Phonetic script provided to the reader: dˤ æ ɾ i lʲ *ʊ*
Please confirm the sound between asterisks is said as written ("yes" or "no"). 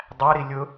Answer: yes